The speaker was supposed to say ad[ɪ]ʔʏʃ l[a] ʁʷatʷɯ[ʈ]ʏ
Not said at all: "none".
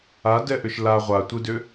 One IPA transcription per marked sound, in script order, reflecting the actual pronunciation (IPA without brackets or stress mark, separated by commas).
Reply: ɛ, a, d